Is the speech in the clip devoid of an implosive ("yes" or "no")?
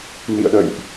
no